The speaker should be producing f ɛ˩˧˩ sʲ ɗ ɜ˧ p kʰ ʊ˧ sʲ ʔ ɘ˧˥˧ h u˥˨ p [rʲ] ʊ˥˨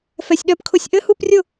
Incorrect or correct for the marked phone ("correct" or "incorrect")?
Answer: correct